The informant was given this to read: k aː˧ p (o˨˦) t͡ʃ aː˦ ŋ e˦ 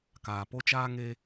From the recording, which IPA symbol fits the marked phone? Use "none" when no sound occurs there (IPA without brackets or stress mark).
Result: o˦